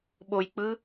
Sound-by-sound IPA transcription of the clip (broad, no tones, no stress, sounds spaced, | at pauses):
ɓ o j k͡p ɯ